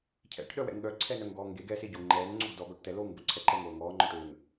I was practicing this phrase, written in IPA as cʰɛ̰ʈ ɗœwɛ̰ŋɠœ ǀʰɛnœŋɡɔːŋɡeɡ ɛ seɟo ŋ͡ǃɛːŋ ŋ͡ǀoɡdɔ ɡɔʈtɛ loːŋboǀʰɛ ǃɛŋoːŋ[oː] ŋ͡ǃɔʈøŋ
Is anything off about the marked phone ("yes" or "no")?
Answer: yes